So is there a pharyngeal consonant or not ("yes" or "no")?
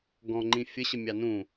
no